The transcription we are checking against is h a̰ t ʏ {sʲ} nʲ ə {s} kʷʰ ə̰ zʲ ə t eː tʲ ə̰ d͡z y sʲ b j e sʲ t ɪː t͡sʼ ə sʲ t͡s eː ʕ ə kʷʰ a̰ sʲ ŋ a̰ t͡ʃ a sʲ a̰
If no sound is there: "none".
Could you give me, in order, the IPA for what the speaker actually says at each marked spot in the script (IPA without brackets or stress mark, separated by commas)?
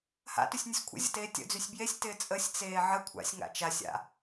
sʲ, sʲ